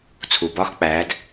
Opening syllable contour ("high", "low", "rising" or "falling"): low